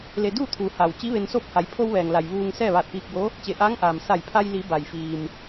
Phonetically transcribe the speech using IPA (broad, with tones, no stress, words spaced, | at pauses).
le˧ duː˥˨t̪ʰuː˩˧ haː˩w t͡ɕi˧˥ʋe˧nsoː˥˨p̚ha˩˧j pʰo˧wʋɛː˩ŋla˩j ʋuː˧ŋ sɛː˥˨ʋaː˧˩t̚piː˧k̚bo˧˥ | t͡ɕe˩˧ ʔaː˧˥ŋʔaː˩m sa˧˩jpʰa˧jli˩˧ ba˩jfiː˩m